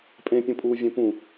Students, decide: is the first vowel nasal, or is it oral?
nasal